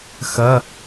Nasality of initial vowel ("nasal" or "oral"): oral